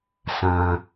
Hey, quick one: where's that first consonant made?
tongue tip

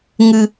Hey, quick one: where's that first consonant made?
velum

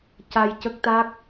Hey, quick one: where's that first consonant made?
palate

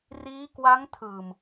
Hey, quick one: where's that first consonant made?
tongue tip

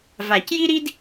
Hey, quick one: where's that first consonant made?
lips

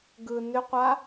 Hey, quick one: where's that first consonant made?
velum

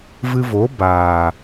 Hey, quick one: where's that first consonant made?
lips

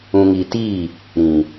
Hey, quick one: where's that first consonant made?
velum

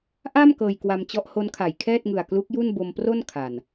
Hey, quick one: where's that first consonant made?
throat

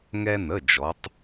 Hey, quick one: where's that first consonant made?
velum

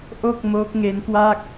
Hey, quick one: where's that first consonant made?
throat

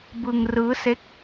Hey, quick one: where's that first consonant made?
lips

